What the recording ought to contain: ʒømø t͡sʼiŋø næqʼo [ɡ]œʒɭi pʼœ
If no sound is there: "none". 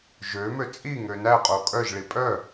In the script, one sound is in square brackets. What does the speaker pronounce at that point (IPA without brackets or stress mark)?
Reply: kʼ